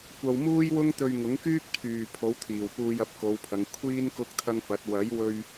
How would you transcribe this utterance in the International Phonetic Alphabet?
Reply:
kʷ ɐ˧ w m uː˥ j w ʊ˥ ŋ t̪ ɵ˧ ɥ ŋ ʊ˨˥ ŋ k yː˥ k̚ t̪ʰ yː˨ pʰ o˨˥ w t̪ʰ iː˨˩ w p uː˧ j ɐ˨˥ p̚ k o˨˧ w pʰ ɐ˨˧ ŋ kʷʰ iː˥ n k ʊ˥ k̚ t̪ʰ ɐ˥ ŋ f ɐ˨˥ t̚ w ɐ˨˥ j w ɵ˧ ɥ

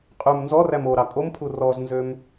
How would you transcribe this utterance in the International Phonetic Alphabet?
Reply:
qʼ ʉ m n z ɔ r æ m o ɾ ɑ kʼ o m pʰ u r ɔ z n z ø m

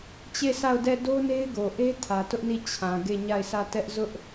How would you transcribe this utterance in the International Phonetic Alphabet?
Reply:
t͡ɕ e˦˨ sʰ a˦˨ ʊ̯ d ɛ˦˨ d o˦ n e˦ ɪ̯ ɡ o˨ ʔ e˦ tʰ ä˨ t ʊ˦ ʔ n i˦˨ t͡ɕʰ ã˨ ɡ e˦˨ ɲ a˦˨ ɪ̯ sʰ ä˦˨ t ɛ˦ ʔ z ʊ˦ ʔ

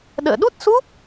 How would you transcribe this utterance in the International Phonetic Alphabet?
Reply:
ɗ ə̰ː˧˨ ɗ u˦˥ t̚ s u˦˥ p̚

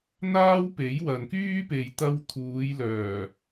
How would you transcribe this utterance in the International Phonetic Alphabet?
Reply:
n̪ aː˥ w p e˨˥ j w ɐ˨ n k yː˥ p e˨ j t̪ ɐ˧ w t̪ʰ uː˨˧ j l œː˨˩

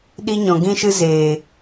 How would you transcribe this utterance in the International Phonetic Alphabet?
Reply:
ɗ i˦ ɲ ɔ̃˨ ɡ ĩ˦ ʃ ɨ˦ z eː˨

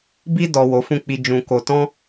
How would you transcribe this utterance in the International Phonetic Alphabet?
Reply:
b i˧ d ɔ˨ w o˨˦ f ũ˦˨ k͡p i˧ d͡ʒ ũ˧ k o˧ t ɔ̃˦

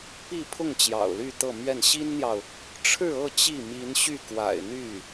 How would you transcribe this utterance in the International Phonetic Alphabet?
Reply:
p i˥˧ pʰ ʊ˥˩ ŋ t͡ɕ j ɑ̰˨˩ ʊ̯ l y˥˧ t̪ ɤ˥˧ m ɥ ɛ˥˩ n ɕ i˥ n n̪ j ɑ˨ ʊ̯ | ʈ͡ʂʰ ɻ̩˥˧ ɤ˥˧ t͡ɕ i˥˩ m i˧˥ n ɕ y˥˩ k w a̰˨˩ ɪ̯ n̪ y˥˩

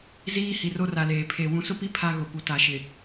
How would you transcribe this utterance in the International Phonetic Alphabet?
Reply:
z iː˦ h i˨ r o˦ r a˨ l eː˨ pʰ e˨ w ũ˨ s ʊ˦ p i˦ pʰ a˦ ɣ ʊ˨ p u˨ t a˨ ʃ ɪ˨

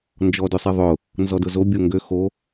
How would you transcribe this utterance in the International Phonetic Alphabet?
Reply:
n d͡ʒ ɔ d ø sˤ i ðˤ ʊ | n z ɔ d ʊ z o bʲ o ŋ ɡ ø x o

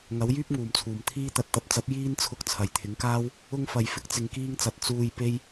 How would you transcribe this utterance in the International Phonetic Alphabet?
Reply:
ŋ ɐ˨˥ w j yː˥ p̚ ŋ uː˨˩ m t͡sʰ uː˨˩ m t̪ʰ iː˧ t̪ ɐ˨ t̚ t̪ ɐ˨ p̚ t͡s ɐ˨˥ p̚ j iː˥ n t͡sʰ ʊ˧ k̚ t͡sʰ ɐ˨˩ j t̪ʰ ɪ˨˥ ŋ k aː˥ w | ʊ˧ ŋ f ɐ˨ j f ɪ˥ k̚ t͡s ɪ˧ ŋ k iː˥ ŋ t͡s ɐ˧ t̚ t͡s uː˧ j p e˥ j

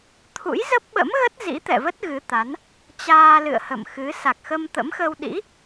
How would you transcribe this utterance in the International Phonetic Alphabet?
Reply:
t̪ʰ ṵ˧˥ j z ə˦˥ p̚ ɓ ə̰˧˥ m ɣ ə˦˥ t̚ z ḭ˧˥ t̪ ɛ̰˧˨ v ə˦˥ t̚ ɣ ɨ˨˦ t̪ a˨˦ n | t͡ɕ aː˧ l ɨ̰˧˨ ə̯ h ə̰˧˨ m x ɨ˨˦ s a˨˩ k̚ x ə˧ m t̪ ə̰˧˥ m x ə˧ w ɗ ḭ˧˥

